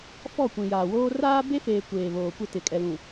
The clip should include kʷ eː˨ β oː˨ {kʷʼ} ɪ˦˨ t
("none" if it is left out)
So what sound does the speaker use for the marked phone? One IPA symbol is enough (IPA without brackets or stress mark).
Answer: kʷ